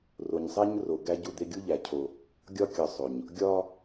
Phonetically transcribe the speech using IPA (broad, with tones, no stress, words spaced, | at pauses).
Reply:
ro˨ɲsˤæ˦ɲ ro˨ ɡæ˦ɟu˦˨ d̪e˦ ɡʲu˦ʎæ˨ cʰo˦ | ɡʲɒ˦kʲɒ˨sˤo˨ɲ | ɡʲɒ˦